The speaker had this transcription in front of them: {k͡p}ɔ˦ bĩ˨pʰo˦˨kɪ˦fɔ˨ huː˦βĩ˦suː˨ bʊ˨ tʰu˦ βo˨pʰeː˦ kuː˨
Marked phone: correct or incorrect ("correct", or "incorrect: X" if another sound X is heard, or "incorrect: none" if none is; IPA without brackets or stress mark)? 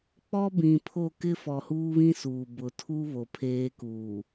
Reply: correct